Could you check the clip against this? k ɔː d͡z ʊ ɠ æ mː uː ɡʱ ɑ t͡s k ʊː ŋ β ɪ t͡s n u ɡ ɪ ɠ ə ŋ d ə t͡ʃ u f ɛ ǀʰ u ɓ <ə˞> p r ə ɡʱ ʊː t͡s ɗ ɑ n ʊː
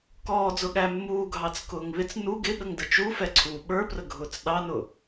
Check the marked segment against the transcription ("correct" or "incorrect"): correct